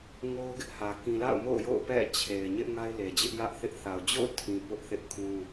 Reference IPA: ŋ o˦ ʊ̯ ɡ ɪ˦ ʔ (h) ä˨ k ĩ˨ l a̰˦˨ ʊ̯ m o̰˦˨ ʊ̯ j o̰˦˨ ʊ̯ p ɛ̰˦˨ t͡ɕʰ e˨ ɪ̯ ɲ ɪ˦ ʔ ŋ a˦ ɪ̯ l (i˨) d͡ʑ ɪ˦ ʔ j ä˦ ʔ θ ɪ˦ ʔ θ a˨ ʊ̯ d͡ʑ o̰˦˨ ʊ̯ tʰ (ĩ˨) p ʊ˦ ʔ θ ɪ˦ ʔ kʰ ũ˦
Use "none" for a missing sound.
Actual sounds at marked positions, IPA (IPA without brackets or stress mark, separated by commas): h, e˨, ĩ˨